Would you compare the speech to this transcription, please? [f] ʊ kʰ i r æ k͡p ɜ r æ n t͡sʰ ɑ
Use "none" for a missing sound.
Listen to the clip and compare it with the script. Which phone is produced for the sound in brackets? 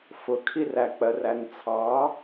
f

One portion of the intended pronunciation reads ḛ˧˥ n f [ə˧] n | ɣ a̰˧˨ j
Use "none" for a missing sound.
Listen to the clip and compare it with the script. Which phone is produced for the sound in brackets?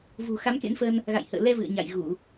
ə˧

